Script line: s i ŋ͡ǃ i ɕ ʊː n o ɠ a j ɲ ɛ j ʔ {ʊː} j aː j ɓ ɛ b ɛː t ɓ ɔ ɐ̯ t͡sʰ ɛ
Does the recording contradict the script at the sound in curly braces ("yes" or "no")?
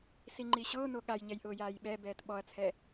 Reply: no